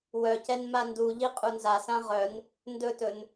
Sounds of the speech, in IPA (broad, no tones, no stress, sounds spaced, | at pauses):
w œ c ɛ n m a n d u ʎ i qʼ u n z a s ã ʁ œ n | n d ɵ t ɵ n